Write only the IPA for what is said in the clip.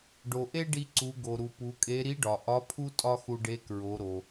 ɖ o˩ ʔ e˥ ɖ i˧ ǀ u˩˧ ɡ o˩ ɾ u˩ p u˩˧ kʼ e˧˥ ɾ i˧˥ ɖ ɒ˩ ʔ ɒ˧˥ pʰ u˥ tʼ ɒ˥ x u˧ ɖ e˧˥ k ɹ o˩˧ ɾ o˩

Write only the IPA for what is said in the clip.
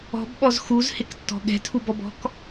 ɔ̤ b ɓ ɔ z x u z h ɪ k tː ɔ̤ ɠ ɛ̤ tʰ u b ɔ b ɔ̤ k

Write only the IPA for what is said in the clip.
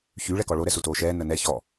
ç y ɭ ɛ k ɔ ɭ o ɾ ɛ s u t oː ʃ ɛː n ə n ɛ ç ɔ

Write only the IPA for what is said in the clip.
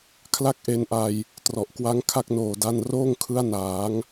kʰ l a˥˩ k̚ ʔ e˧ n ʔ a˧ j | t r ɔ˨˩ ʔ k w a˦˥ ŋ kʰ a˥˩ k̚ n oː˨˩ d a˥˩ n r oː˥˩ ŋ kʰ ɯ˦˥ a̯ n aː˩˦ ŋ

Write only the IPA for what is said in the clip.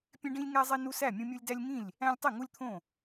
pʲ ẽ˦ ɖ ĩ˦ lʲ ŋ æ˦ zˤ i˦ n u˦ s æ˥˩ mʲ ũ˦ mʲ u˦ lʲ d æ˦ lʲ ŋ ĩ˥˩ lʲ | æ̃˦ lʲ tˤ i˥˩ ŋ u˦ lʲ t̪ʰ õ˥˩

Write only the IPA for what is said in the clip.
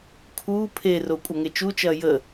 kʰ uː pʰ e r o kʷʼ ɐ ŋ e t͡ʃ u t͡ʃ ɐː j ə

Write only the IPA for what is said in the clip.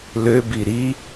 l ø b i ɾ i

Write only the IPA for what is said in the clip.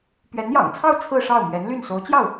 p ɥ ɛ˧˥ n j ɑ̰˨˩ ŋ t͡sʰ ɑ˥˧ ʊ̯ t͡sʰ ɹ̩˥˧ ʂ ɑ˥˩ ʊ̯ m ɥ ɛ˧˥ n l y˥˩ n s o˧˥ ʊ̯ t͡ɕ j ɑ˥˩ ʊ̯

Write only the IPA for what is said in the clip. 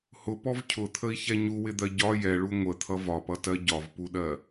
h ʊ p ɔ v cʰ ʊ t̪ʰ ə i̯ ç ɛ ɲ u w ɪ d̪ ɜ ɟ ɒ j ɛ ɭ u ŋʷ ə t̪ʰ ʌ v ɒ p ʌ t ɜ ɟ ɒ v p u ɗ ɜ

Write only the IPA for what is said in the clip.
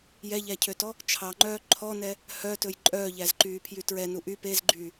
j ɛ ʎ æ cʰ ø t ɔ | t͡ʃʰ ɑ ŋ͡ǃ œː ǃʰ ɔ n ɛ | h œ t ɵ j ǃʼ œː ʎ æ z ǃ yː pʰ j y t ɹ ɛ n u ʔ y p e z ɡ͡ǃ yː

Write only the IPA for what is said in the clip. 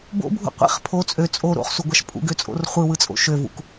b o̰ bʱ ṵ qʷ ḭ χ pʰ o t͡sʼ ø t͡sʼ o ɾ o̰ χ s u ɡʷ ɑ ʃ pʼ ṵ ɡ ø t͡sʼ o̰ r χʷ ɯ w ɯ t͡sʼ o̰ ʃ ø v ṵ k

